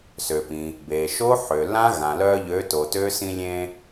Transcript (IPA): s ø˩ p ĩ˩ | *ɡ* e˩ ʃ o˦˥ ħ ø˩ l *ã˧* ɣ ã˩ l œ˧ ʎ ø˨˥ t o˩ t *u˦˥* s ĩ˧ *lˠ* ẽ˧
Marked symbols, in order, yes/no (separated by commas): no, no, no, no